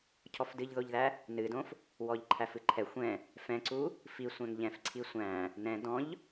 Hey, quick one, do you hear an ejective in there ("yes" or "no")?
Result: no